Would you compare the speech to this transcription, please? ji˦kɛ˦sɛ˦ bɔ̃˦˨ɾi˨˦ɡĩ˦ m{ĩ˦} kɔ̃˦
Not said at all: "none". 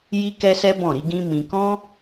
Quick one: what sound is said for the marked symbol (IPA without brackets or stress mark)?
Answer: ĩ˧